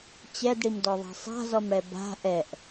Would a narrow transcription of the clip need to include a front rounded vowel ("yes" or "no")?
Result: no